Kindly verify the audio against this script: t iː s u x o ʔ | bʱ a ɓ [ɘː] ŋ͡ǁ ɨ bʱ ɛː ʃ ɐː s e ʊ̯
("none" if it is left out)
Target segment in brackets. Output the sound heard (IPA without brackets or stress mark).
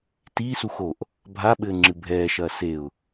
ɘː